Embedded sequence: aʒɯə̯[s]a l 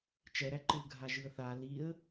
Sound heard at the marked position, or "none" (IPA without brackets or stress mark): θ